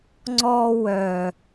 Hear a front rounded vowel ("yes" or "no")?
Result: yes